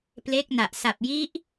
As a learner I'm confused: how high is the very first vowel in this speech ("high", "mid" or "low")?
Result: mid